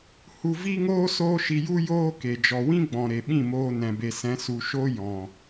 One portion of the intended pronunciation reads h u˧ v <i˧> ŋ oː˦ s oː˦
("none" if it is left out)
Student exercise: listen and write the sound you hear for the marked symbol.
i˦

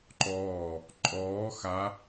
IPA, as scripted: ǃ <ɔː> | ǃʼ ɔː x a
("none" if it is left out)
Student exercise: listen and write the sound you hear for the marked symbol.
ɔː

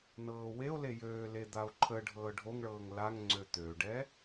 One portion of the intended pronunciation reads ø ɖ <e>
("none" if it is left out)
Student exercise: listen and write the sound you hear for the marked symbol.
ɛ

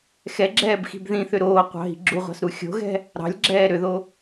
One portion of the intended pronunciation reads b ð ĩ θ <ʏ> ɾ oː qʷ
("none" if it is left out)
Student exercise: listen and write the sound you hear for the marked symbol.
ʏ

